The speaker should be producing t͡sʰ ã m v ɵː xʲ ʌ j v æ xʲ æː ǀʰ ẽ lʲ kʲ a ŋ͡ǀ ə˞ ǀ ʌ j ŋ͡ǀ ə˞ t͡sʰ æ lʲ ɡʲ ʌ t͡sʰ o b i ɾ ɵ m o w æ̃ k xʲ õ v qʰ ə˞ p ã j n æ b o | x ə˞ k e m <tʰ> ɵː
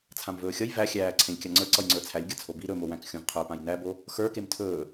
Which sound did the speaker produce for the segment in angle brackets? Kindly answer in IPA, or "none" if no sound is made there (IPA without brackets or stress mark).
tʰ